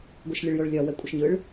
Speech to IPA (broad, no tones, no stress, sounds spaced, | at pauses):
ɡʷ ɯ ʃ lʲ ɨ ɭ j o ɭ lʲ ɒ w ɛ kʷʼ ɪ ʃ ɲ ɯ ɭ